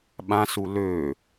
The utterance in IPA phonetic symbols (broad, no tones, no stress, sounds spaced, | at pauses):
ɓ ã s u l ø